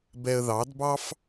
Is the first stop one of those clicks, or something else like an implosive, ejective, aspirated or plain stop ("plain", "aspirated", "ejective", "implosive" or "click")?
plain